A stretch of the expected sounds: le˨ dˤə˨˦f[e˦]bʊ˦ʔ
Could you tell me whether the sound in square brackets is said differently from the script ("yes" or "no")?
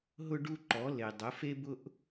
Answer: no